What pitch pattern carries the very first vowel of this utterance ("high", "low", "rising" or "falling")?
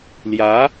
rising